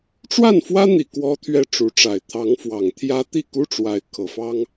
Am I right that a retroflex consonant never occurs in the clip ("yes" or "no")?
no